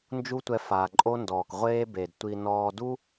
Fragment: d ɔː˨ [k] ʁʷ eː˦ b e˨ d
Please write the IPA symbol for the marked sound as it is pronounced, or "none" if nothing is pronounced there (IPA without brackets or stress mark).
k